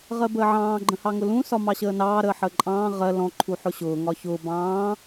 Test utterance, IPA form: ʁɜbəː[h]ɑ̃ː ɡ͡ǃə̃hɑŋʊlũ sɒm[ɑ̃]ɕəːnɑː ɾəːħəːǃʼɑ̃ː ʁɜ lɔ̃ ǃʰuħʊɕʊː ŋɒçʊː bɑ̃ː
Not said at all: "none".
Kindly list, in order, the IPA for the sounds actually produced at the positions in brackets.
ʕ, ɑ

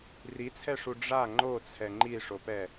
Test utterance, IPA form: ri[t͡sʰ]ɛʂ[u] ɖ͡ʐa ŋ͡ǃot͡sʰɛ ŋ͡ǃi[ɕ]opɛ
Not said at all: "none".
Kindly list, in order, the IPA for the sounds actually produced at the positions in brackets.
t͡sʰ, u, ʂ

